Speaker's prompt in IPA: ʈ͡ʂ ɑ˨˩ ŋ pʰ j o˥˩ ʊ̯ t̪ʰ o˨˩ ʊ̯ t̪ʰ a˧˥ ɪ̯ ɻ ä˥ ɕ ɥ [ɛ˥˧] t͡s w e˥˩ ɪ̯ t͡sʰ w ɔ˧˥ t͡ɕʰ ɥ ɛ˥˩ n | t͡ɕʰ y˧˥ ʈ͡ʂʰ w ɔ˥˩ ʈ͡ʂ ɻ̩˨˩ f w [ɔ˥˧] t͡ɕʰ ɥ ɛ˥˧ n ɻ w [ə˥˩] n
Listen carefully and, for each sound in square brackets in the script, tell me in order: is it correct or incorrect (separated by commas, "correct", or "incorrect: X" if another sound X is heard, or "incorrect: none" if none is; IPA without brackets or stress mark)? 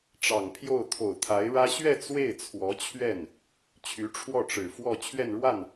correct, correct, incorrect: a˥˩